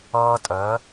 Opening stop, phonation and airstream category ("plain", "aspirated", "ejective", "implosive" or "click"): ejective